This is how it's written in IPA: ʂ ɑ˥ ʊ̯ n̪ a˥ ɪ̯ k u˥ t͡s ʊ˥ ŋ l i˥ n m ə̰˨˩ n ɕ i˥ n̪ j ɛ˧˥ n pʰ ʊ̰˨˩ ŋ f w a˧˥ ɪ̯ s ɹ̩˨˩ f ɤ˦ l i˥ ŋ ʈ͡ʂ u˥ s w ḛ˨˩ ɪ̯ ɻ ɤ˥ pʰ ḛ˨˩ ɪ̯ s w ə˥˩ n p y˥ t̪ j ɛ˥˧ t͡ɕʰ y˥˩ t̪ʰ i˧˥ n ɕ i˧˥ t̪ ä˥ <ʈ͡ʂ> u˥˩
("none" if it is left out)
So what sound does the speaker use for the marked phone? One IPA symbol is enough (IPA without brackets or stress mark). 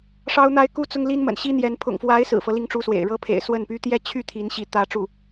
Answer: ʈ͡ʂ